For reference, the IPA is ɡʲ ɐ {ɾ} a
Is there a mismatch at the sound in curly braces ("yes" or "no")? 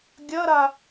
no